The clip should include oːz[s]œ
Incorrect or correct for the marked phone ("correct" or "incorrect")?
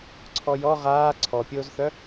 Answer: incorrect